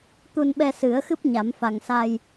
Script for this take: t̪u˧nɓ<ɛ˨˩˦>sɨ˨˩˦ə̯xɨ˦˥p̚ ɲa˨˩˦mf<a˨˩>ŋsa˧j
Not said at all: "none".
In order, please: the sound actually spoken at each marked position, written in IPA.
ɛ˧, a˨˩

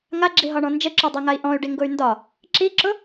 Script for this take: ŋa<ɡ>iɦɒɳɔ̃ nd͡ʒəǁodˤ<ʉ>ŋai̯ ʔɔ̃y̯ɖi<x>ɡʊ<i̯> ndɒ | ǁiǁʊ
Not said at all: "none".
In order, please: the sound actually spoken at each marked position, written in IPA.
ɡ͡ǁ, ʉ, ŋ, y̯

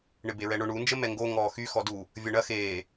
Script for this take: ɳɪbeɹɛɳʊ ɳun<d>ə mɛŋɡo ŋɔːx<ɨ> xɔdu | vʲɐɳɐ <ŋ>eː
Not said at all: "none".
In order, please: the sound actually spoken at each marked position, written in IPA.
d͡ʒ, y, x

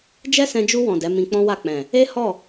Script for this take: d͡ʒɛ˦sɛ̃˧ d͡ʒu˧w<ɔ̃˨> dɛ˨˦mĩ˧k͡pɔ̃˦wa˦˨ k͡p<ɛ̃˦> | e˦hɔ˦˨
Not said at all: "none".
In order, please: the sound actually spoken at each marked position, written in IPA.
ɔ̃˨, ɛ̃˨

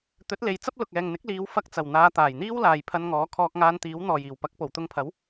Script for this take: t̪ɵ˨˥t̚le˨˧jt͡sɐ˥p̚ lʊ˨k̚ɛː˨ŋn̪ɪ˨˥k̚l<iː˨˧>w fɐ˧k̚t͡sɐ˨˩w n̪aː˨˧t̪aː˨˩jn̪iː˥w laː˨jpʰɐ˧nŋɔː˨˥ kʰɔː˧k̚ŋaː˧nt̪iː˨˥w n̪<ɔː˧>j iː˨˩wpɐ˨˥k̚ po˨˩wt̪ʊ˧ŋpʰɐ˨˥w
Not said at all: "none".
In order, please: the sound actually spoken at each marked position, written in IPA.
iː˨˧, ɔː˨˩

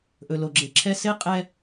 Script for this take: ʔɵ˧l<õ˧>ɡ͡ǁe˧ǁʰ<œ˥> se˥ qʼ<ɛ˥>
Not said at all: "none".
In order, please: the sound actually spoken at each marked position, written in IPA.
o˧, ɛ˥, ɛ˥

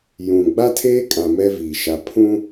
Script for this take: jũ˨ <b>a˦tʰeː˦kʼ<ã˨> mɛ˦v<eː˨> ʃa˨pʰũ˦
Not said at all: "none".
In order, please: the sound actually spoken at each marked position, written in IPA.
ɡ͡b, ã˨, iː˨

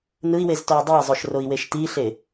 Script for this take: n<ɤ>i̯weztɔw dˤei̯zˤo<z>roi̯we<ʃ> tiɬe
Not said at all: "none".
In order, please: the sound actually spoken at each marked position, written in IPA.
ɯ, ʃ, ʃ

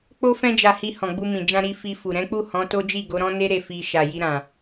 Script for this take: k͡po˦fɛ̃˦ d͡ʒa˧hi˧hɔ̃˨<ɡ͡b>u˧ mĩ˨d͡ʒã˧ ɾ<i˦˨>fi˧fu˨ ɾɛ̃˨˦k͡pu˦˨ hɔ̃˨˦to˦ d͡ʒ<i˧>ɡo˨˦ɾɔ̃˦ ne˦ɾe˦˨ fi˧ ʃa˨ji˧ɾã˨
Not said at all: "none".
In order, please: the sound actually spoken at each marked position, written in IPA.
ɡ͡b, i˧, i˦˨

